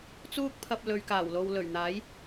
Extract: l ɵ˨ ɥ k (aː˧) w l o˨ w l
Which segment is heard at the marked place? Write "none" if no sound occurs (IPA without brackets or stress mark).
aː˨˩